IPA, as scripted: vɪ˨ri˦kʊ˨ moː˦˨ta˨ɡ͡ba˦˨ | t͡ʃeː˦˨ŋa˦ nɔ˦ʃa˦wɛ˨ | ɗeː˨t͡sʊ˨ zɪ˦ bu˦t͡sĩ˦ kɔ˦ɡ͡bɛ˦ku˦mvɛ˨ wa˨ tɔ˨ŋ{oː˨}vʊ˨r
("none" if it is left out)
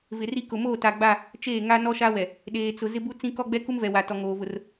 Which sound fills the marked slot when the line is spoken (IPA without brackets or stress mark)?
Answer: oː˨